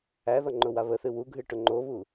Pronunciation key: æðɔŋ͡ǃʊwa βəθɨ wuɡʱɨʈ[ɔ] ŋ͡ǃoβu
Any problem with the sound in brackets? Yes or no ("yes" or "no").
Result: yes